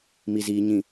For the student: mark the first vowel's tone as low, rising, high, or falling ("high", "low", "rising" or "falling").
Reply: low